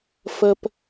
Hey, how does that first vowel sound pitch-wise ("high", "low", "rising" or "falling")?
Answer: low